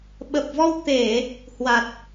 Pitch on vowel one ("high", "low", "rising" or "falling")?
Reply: low